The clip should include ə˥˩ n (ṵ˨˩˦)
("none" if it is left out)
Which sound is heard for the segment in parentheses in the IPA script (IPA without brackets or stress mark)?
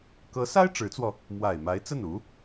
u˧˥